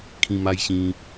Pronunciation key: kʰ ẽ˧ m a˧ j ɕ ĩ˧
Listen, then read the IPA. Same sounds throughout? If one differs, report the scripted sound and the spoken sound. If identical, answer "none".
ẽ˧ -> ĩ˧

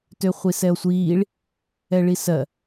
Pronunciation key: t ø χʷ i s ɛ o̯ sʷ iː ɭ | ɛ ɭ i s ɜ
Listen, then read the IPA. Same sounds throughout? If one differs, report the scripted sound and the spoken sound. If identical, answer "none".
none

